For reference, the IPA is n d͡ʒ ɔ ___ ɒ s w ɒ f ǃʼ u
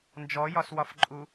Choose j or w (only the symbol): j